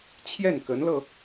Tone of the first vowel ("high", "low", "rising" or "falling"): falling